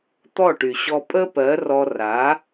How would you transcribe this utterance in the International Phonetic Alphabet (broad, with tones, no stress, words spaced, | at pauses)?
t̪ɔ˦˨ʈy˨ ɕɔ˧ pʼə˦pɜ˨˦ rɔ˧ra˨˦